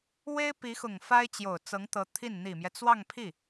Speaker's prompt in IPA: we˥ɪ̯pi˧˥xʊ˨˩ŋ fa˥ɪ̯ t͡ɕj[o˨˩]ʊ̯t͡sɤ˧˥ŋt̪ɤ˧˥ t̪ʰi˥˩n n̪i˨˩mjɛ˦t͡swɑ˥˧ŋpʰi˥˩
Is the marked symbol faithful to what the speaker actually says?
yes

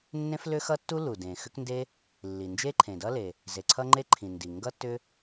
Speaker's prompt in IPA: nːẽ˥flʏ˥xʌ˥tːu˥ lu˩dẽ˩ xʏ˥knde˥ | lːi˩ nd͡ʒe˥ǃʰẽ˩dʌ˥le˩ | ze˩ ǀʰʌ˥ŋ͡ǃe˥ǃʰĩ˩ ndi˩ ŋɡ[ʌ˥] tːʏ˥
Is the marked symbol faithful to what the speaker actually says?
yes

